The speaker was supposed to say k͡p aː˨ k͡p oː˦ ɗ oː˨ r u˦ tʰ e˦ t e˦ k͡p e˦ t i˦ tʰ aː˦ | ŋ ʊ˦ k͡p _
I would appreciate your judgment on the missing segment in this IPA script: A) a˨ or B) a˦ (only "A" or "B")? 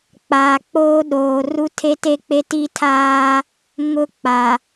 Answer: A